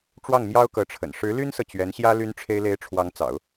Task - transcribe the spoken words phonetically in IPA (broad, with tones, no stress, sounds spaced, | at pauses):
ʈ͡ʂ w ɑ˥˩ ŋ m j ɑ˥ ʊ̯ k ɤ˧˥ ʈ͡ʂʰ ə̰˨˩ n ʂ ɻ̩˧˥ l y˥ n s ɤ˨ t͡ɕ ɥ ɛ˧˥ n ɕ j ä˥ l y˥ n ʈ͡ʂʰ e˥ ɪ̯ l e˥ ɪ̯ ʈ͡ʂʰ w ɑ˧˥ ŋ t͡s ɑ̰˨˩˦ ʊ̯